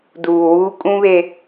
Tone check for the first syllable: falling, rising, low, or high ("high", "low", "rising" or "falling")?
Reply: low